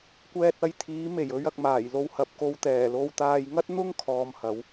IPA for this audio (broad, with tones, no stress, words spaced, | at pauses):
kʷɛː˧t̚ɐ˧jt̪ʰiː˨˥me˨˩j ɵ˨˧ɥ ɐ˨k̚maː˨˩jlo˧w hɐ˨p̚ko˧w t̪ɛː˨˩lo˧wt̪aː˧j ŋɐ˥t̚n̪ʊ˥ŋ kʰɔː˧mhɐ˨˥w